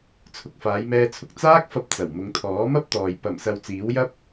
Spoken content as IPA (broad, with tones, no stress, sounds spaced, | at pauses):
t͡sʰ ʊ˨ k̚ f aː˨˧ j m ɛː˧ t͡sʰ ʊ˧ k̚ t͡s aː˥ k̚ f ɐ˧ p̚ t͡s ɐ˨˩ w m ʊ˨˧ ŋ t̪ʰ ɔː˨˥ m ɐ˥ p̚ t̪ ɔː˨ j p ɐ˨˩ m s ɐ˨ w t͡s iː˨˥ w j ɐ˥ p̚